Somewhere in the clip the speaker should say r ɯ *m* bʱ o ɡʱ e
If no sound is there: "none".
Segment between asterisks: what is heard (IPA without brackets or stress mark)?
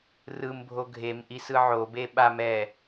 m